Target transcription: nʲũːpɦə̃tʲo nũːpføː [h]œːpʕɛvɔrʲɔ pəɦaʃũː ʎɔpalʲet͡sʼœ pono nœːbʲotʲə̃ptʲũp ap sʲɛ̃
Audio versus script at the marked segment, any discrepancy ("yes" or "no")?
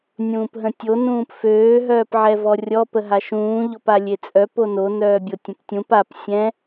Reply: yes